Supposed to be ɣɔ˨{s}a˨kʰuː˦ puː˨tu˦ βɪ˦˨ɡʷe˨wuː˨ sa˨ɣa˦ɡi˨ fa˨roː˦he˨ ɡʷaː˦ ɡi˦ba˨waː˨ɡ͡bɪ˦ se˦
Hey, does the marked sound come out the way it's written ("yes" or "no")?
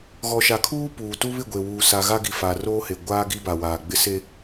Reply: no